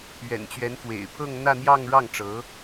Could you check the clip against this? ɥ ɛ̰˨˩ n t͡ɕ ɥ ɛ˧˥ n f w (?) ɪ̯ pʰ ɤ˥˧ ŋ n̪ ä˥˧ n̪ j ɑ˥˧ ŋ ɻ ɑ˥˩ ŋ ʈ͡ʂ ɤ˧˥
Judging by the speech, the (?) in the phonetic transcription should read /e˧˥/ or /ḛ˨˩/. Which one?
ḛ˨˩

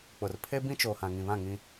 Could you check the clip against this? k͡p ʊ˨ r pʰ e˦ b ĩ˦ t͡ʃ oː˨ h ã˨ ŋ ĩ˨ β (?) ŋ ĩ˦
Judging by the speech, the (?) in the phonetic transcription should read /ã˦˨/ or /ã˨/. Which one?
ã˦˨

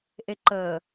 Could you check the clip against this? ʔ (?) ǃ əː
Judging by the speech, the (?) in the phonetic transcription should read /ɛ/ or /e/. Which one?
e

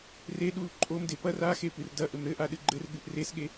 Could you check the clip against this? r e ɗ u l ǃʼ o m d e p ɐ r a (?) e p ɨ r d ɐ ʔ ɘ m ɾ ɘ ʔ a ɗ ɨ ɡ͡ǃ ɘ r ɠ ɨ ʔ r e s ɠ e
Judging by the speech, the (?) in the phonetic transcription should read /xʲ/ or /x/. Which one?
x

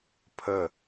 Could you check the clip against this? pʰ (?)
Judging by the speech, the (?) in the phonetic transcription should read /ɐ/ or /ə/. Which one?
ə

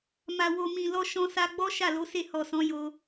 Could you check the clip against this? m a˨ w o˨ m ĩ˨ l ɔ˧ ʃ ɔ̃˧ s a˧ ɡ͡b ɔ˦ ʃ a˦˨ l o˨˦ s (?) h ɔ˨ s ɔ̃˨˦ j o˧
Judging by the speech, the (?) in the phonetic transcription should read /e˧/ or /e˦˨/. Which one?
e˦˨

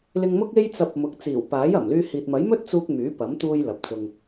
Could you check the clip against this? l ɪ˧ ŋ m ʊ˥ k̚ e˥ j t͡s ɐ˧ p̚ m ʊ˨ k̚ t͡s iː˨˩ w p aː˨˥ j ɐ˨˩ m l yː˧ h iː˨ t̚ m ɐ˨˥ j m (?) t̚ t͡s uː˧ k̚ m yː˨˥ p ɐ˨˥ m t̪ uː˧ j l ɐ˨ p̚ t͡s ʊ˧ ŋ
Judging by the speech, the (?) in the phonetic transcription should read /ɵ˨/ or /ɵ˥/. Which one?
ɵ˥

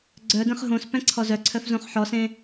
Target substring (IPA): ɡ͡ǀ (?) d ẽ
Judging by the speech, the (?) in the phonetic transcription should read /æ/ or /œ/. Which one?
œ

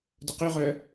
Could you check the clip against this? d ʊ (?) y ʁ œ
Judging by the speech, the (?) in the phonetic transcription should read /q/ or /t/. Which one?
q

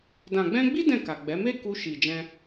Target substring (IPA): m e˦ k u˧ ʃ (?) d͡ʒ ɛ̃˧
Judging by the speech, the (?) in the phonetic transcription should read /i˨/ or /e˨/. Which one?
i˨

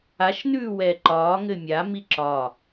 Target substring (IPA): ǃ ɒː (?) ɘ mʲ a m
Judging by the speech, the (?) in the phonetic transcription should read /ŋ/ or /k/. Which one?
ŋ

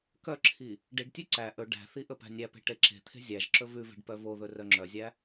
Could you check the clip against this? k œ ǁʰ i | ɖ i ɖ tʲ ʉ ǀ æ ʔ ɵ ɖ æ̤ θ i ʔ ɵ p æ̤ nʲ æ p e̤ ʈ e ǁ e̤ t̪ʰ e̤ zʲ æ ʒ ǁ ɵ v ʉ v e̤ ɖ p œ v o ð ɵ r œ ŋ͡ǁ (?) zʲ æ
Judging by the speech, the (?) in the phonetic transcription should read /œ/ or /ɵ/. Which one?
œ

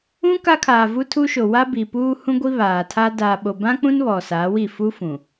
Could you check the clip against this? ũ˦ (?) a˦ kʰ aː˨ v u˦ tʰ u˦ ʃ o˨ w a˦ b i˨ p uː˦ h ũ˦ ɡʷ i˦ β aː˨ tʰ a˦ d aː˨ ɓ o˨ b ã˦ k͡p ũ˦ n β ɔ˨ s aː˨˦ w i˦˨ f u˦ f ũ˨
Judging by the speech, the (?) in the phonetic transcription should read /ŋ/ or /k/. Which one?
k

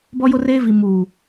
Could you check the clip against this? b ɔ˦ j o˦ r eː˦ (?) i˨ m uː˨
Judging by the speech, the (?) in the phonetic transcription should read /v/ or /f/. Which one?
v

